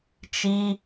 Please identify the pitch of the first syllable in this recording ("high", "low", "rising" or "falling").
high